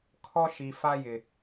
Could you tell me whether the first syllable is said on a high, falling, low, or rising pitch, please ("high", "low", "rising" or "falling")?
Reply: high